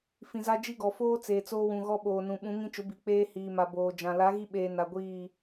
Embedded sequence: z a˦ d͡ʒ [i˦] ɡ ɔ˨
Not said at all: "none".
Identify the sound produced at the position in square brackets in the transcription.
i˦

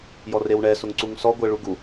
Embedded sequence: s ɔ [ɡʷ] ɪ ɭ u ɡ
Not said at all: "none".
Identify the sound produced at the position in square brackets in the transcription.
ɡʷ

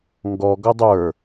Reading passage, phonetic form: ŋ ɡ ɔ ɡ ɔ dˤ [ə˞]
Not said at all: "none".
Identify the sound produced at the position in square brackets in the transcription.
ə˞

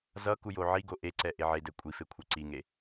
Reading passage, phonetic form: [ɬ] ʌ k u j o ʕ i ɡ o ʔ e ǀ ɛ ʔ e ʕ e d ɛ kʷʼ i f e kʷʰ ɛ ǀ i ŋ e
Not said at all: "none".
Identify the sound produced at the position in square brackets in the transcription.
z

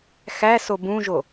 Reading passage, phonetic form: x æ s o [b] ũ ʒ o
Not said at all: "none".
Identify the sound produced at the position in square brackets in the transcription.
b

